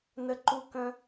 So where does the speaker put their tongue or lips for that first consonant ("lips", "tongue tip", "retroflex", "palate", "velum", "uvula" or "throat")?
tongue tip